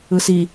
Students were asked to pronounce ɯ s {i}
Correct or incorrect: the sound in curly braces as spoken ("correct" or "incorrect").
correct